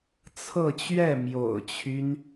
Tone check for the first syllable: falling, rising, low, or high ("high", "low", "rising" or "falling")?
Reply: falling